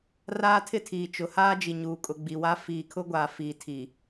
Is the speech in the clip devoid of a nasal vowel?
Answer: yes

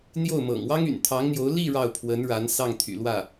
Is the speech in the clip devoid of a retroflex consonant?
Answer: no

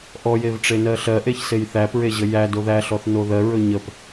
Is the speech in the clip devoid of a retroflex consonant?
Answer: no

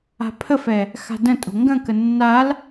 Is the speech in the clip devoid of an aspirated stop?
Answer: no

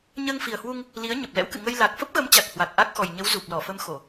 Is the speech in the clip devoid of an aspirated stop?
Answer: yes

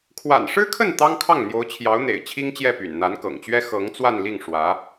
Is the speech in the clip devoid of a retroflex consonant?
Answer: no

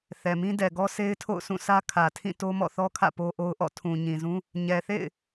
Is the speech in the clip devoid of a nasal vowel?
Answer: no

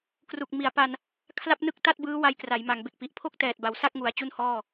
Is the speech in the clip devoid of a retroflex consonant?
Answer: yes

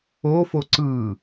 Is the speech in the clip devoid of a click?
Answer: no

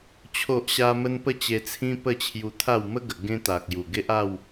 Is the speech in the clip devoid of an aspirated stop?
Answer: no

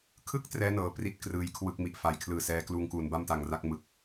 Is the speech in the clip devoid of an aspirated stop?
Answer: no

